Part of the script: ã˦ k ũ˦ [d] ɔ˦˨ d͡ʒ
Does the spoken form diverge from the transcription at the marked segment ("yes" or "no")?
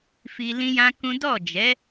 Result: no